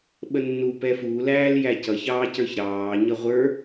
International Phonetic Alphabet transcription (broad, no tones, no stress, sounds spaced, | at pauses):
ɓ ə nː u p ɛ f u l æː l j æ c ʌ ç ɑː c ə˞ ç ɾ ɑː ɲ ʌ ʁʷ ə˞